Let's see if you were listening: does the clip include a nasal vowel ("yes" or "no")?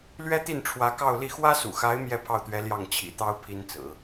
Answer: no